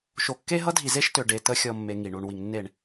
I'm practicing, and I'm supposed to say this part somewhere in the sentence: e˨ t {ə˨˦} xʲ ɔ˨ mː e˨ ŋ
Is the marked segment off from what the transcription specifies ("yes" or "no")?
no